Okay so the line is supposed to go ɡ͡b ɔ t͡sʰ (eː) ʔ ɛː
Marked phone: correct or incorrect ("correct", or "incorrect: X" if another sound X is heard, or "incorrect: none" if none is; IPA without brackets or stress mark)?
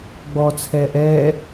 incorrect: ɛː